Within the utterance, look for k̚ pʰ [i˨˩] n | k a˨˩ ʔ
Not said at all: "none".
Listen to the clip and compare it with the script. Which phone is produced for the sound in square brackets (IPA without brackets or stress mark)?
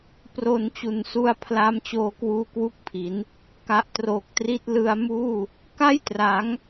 i˩˦